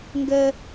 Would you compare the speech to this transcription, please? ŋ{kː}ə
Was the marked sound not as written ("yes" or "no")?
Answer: yes